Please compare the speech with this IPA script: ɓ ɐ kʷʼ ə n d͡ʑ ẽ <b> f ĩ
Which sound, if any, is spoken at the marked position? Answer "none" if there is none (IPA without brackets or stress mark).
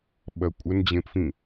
p